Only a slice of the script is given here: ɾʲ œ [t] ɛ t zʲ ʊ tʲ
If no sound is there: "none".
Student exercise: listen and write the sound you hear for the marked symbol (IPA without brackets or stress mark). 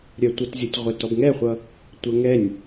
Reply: tʷ